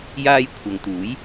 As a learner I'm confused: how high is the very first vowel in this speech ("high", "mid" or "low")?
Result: low